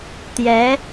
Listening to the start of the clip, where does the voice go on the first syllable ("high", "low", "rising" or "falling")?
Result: rising